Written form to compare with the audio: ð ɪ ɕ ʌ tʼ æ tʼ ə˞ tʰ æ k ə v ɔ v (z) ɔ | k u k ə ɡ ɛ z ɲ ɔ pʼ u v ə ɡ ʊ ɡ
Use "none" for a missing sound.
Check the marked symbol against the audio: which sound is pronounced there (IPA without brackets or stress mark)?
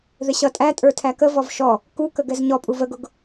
ʃ